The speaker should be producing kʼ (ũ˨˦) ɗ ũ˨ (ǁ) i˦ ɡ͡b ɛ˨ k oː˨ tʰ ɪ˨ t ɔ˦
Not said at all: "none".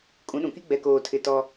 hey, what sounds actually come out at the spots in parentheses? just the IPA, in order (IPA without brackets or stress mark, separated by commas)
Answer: ũ˨˦, k